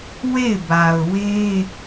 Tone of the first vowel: falling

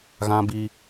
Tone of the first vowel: high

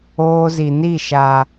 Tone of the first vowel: high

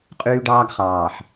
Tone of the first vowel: high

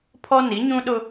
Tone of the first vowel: high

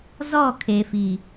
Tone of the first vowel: falling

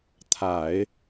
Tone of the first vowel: low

